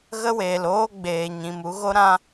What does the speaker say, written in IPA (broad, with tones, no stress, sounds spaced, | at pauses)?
ɣ ə˦ w eː˨ l oː˦ ɡ͡b eː˨ ɲ ĩ˨ m u˧ ɣ o˦ ɾ ã˦